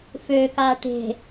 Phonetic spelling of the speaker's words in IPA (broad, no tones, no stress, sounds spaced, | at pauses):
f ø k aː ʈ e̤